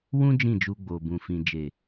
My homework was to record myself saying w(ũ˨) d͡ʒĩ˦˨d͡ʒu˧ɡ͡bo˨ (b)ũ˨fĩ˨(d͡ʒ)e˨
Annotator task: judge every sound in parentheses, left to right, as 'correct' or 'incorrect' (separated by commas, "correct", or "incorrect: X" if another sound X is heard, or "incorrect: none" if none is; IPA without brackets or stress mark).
incorrect: ũ˦, correct, correct